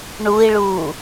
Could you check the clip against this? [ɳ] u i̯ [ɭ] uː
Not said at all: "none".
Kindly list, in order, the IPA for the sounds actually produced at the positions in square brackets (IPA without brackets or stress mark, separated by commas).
ɳ, ɭ